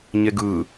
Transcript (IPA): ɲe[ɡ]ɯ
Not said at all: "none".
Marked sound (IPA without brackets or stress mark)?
ɡ